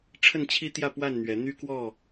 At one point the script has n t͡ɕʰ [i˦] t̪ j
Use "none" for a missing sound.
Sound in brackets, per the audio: i˦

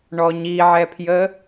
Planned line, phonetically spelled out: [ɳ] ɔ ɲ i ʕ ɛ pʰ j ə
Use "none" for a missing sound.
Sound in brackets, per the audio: ɳ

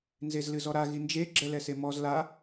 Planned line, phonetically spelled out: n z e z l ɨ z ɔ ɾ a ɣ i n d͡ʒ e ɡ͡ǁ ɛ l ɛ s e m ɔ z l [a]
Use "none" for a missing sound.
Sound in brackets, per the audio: a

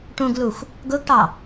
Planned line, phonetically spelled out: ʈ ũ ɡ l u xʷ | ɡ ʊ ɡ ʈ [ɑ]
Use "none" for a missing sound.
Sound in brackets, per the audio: ɑ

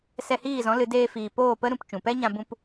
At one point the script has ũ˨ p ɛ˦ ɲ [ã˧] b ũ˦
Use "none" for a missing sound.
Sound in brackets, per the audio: ã˧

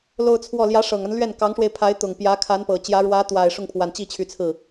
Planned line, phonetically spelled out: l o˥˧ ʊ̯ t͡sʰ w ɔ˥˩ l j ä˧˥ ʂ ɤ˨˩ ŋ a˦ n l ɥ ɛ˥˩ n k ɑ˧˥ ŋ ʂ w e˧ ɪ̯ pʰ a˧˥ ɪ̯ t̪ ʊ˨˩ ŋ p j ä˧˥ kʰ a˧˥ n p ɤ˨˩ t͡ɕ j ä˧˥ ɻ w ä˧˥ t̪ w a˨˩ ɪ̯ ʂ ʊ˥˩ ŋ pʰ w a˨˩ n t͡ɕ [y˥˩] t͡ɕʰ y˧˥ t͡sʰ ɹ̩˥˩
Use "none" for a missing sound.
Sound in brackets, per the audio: i˥˩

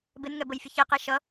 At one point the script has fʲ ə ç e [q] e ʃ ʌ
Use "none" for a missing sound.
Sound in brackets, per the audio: q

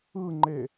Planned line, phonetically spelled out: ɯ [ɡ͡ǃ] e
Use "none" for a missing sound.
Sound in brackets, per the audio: ŋ͡ǃ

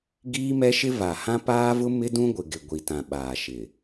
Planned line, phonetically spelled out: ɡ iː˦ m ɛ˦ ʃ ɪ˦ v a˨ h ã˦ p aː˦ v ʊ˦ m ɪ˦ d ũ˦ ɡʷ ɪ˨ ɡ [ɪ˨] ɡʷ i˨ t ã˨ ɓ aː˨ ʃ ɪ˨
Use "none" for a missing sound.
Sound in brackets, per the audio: ɪ˨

